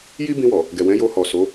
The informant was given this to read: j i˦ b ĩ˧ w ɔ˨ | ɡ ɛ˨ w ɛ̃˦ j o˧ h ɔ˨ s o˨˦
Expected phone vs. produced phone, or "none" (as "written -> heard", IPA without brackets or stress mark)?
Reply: ɛ̃˦ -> ɛ̃˨˦